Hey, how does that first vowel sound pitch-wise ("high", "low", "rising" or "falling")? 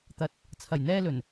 rising